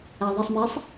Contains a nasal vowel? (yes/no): no